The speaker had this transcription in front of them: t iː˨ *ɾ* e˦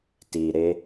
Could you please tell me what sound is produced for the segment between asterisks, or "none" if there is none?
ɾ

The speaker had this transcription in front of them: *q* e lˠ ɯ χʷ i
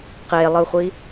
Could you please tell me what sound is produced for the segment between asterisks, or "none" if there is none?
q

